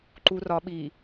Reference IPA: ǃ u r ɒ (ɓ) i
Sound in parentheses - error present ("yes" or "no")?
no